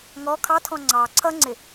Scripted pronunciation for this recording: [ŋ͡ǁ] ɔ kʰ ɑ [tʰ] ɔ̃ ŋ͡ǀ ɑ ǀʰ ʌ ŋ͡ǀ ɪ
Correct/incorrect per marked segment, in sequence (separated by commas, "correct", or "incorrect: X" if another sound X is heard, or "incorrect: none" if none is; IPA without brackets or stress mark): incorrect: ŋ, correct